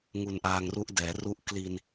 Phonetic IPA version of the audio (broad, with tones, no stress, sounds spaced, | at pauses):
ŋ u˧ n ʔ aː˧ ŋ r u˦˥ ʔ d ɛː˩˦ r u˦˥ ʔ k l i˧ n